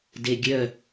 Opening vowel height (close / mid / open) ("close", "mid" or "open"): mid